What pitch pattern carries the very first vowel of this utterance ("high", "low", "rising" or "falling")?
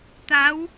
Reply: rising